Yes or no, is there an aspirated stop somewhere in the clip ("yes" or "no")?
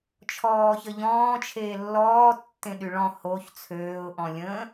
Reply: yes